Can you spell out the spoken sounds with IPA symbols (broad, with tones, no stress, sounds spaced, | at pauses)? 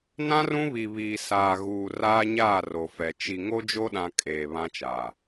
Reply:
n ã˦ r ũ˦ β i˨ β iː˨ s aː˨ ɣ uː˨ r aː˦ ɲ aː˦˨ r o˨ f ɛ˨ t͡ʃ i˨ ŋ o˦ d͡ʒ o˦ ɗ ã˨ kʼ eː˨ β ã˦ t͡ʃ aː˨